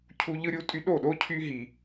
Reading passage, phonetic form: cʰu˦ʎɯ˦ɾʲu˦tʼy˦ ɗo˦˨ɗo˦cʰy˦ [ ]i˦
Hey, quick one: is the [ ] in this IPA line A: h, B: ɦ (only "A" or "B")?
B